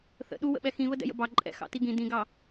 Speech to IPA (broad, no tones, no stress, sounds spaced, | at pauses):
θ ə̰ ɗ u w ə̰ ɓ ɛ x ĩ β ə d ɛ̰ j ə̰ b ɑ ǃʼ ɛ̰ x ɑ̰ t i ɡ ĩ d ĩ ɡ ɑ